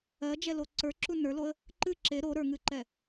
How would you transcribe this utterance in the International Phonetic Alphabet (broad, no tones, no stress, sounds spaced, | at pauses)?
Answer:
ɜ d͡ʒ ɛ l o ǀ ə˞ ǁ u n ə˞ l o ə̯ | ǃ ɨ ǁ e ɾ o ɾ ə˞ ŋ ɨ ǃ ɛ